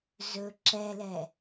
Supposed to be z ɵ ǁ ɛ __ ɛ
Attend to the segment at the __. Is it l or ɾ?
l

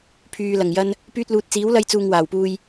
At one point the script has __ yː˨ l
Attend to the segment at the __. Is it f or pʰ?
pʰ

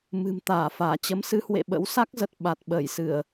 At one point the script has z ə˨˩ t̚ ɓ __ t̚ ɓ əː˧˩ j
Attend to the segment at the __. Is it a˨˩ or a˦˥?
a˨˩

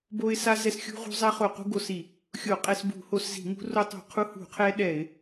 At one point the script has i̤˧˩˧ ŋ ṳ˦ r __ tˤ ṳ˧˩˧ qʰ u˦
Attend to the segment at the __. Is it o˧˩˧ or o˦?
o˦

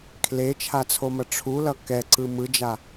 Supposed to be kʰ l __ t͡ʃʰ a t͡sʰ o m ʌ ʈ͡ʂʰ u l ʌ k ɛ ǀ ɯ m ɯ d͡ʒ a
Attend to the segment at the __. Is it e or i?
e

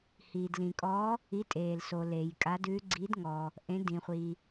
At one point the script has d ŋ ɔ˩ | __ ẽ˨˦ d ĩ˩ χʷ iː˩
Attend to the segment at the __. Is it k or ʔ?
ʔ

